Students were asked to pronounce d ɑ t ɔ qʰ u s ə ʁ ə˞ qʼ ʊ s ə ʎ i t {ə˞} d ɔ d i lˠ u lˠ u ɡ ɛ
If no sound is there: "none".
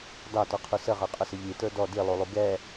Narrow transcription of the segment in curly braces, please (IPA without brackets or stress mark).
ə˞